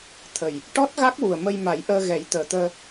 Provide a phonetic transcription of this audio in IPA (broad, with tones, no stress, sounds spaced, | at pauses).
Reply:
t̪ʰ ə˨˩ j | ʈ ɔ˦˥ t̚ ɣ a˦˥ k̚ w u˨˩ ə̯ m ə˧ j m a˨˩˦ j ʔ əː˧ ɣ ɛ˨˩˦ j t̪ əː˨˩ t̪ əː˧